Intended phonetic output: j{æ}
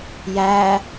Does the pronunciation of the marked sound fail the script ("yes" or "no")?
no